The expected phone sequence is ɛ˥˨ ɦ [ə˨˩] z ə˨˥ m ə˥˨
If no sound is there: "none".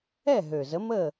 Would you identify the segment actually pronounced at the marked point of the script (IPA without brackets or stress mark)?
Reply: ø˨˩